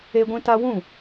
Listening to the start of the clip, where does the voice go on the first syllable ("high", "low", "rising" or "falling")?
high